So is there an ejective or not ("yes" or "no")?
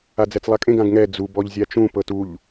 yes